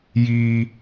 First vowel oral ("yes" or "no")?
yes